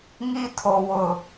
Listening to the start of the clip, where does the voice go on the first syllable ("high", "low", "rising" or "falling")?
high